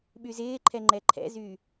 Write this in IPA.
ɓyzɪːǃʰɛ ŋ͡ǃɛǃʰɛ̰zy

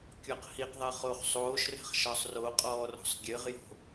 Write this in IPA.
kʲɔqhiqðˤɛ χoːχsˤoːʃrɛ̤χ ʃɒsˤroqʼɔː rɔ̤sˤɡʲɘʁjo̤

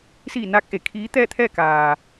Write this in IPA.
siː˧˩ naː˧˥k̚ʔe˩ kʰiː˧˥t̪ɛː˥˨t̪ʰɛː˥˨ kaː˩

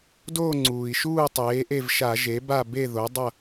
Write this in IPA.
doː˥˨ŋ͡ǀuː˩i̯ʃuː˥˨ tˤeː˩˥ʔe˥˨v ʃa˧˩˧ʒe˩˥ba˥˨ be˥˨ðo˩˥ dˤʌ˥˨

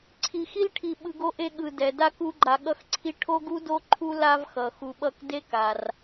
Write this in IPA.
ǀʰi˨xi˥lʈʰi˨ ɓɯ˨ɡo˦ ʔe˦ɠɯ˨ dɛ˩ da˥ku˦ɡ͡ǃa˨ ɠʌ˦xǀʰi˦ ʈʰo˥ɡ u˥do˦ ǃʰu˦ la˦vxʌ˩ xu˨ɓʌ˦k de˥ka˩r

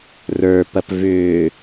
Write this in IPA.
rə˞ pɐpvʏː

